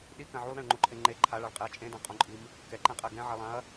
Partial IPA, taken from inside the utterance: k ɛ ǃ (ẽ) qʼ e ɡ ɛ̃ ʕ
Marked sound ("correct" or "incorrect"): correct